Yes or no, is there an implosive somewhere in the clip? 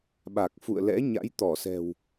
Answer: yes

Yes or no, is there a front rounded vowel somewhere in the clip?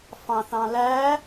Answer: no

